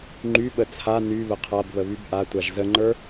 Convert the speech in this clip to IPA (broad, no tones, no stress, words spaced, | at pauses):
ŋ͡ǃyɓə t͡sʰa ny βəqʰabβə βybʔatʷaʒ zəŋ͡ǃə˞